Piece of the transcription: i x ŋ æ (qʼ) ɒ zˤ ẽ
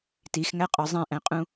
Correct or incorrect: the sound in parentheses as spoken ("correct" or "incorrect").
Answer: correct